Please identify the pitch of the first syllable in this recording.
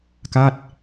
falling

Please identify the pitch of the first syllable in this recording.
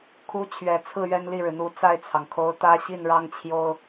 rising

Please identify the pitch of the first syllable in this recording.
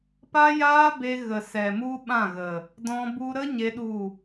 high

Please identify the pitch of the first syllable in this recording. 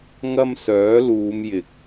high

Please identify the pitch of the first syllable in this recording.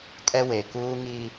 high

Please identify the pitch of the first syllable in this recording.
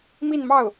falling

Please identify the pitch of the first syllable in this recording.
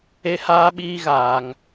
high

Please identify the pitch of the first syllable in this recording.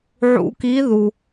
rising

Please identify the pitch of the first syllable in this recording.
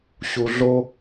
low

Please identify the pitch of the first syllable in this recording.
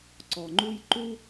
low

